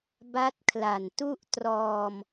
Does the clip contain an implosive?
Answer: no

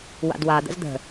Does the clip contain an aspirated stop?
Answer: no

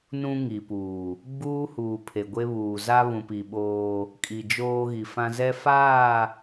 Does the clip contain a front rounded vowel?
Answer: no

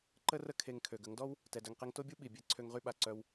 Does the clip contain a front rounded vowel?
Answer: yes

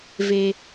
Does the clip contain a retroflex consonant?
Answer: no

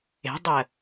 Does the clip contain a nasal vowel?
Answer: no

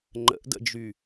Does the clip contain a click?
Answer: yes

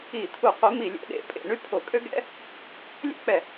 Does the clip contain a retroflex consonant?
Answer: yes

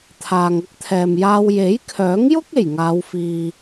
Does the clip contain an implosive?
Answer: no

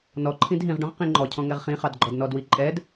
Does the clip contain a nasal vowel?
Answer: yes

